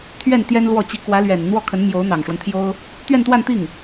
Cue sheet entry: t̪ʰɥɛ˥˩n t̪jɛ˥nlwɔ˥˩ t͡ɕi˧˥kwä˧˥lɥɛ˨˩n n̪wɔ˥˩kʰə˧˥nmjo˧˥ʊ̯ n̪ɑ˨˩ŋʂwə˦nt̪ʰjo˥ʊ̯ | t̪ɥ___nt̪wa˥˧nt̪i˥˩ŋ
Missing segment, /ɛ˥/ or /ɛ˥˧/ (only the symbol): ɛ˥˧